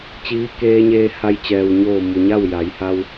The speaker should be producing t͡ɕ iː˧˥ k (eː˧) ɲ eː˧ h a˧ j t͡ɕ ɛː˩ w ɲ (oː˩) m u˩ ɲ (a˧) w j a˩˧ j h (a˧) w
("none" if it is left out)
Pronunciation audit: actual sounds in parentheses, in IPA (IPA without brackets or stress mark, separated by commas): eː˧, oː˧˩, a˥˨, a˧